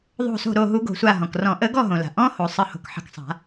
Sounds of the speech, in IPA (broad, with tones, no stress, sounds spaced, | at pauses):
ðˤ o̤˧˩ s o̤˧˩ ɾ o˧˩ ɦ u˨˩˦ ɡ o̤˩ sʷ a˧˩ ɦ ɔ̃˩ k r ɔ̃˨˩˦ ʔ ə˨˩˦ ɡ ɔ˥˨ ɦ õ˩ l a̤˩ ʔ ɔ̃˧˥˧ h o˩ sˤ ə˨˩˦ h o̤˩ k ħ ə̤˧˩ k sˤ a̤˨˩˦